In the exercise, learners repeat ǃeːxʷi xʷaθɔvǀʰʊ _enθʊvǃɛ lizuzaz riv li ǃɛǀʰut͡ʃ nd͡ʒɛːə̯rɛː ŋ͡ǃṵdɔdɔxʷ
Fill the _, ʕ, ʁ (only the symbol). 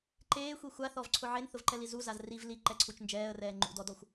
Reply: ʕ